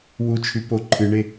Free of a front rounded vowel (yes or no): no